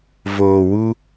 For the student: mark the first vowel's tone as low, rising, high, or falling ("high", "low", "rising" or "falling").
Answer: low